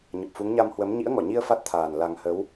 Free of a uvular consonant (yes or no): yes